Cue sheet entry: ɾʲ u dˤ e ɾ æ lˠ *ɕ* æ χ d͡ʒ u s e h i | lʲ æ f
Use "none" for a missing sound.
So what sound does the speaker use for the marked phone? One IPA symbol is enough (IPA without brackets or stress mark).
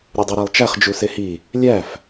t͡ʃ